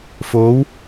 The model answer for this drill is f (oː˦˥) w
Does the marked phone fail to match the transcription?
no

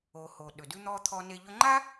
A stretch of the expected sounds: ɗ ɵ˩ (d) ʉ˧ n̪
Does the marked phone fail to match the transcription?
no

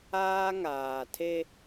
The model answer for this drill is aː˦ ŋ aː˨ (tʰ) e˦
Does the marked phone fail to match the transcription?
no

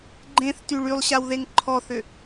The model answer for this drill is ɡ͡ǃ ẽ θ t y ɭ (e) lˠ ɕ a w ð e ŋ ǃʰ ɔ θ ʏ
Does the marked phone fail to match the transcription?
yes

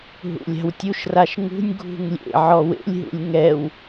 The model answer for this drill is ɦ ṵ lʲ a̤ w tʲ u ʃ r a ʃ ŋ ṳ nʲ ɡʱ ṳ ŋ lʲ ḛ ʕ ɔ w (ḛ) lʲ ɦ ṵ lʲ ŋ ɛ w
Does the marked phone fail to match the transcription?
no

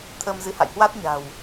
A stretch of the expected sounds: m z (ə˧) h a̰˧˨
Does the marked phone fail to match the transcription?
yes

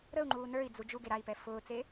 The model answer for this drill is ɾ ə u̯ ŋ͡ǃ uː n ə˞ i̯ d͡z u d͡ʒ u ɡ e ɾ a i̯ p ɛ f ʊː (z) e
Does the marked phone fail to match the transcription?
yes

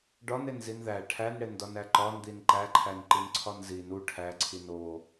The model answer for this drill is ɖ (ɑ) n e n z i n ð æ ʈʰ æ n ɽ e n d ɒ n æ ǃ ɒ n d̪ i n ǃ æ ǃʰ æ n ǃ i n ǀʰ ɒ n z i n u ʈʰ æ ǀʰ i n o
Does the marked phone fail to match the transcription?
yes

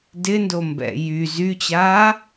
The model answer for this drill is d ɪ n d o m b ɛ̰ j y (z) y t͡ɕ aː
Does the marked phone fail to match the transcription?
no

